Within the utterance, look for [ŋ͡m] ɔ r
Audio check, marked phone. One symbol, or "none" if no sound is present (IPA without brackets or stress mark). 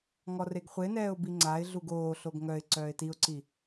ŋ